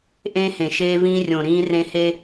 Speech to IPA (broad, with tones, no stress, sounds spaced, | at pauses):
ʔ ẽ˦ h ẽ˨ ʃ eː˦ v ĩː˦ rʲ õ˨ ɾ ĩː˦ r ẽ˦ h eː˦